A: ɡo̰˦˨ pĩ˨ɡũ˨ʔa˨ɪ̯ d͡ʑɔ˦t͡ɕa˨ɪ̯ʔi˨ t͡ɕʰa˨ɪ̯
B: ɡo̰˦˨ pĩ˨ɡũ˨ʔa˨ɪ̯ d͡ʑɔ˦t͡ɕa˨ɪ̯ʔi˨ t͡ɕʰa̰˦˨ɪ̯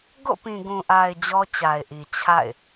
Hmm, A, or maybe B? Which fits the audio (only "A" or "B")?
B